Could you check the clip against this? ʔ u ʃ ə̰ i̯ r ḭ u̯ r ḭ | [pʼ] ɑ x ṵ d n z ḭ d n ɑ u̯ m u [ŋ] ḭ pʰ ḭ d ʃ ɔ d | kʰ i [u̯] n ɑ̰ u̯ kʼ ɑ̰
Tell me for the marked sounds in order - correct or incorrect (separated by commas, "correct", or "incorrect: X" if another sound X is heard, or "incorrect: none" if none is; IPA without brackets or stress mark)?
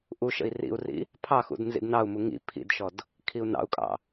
incorrect: pʰ, correct, correct